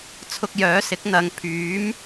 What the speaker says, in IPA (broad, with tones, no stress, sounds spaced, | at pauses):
t͡sʰ ʊ˧ k̚ j œː˨˥ s ɪ˨˥ k̚ n̪ ɐ˨ ŋ pʰ yː˨˥ m